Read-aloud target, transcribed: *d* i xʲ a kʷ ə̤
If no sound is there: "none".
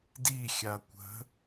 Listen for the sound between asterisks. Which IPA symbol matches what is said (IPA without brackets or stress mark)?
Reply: d